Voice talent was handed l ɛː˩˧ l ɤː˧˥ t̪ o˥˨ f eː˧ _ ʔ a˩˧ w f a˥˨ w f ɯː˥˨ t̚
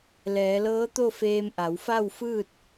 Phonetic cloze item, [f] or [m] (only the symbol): m